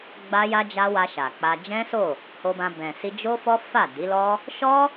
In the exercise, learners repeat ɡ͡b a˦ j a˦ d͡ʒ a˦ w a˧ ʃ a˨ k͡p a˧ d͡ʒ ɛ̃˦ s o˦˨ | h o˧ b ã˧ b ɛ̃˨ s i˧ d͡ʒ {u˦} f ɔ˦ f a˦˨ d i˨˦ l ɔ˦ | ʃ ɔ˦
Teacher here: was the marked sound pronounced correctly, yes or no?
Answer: no